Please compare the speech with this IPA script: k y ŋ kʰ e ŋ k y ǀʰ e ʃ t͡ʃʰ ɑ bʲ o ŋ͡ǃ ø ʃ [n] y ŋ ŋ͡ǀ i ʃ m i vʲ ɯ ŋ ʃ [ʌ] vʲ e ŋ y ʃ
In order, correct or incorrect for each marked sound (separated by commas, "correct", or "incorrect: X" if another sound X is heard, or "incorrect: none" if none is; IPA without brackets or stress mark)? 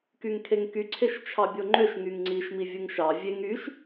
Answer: incorrect: ŋ, incorrect: ɑ